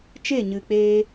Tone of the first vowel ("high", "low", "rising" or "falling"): falling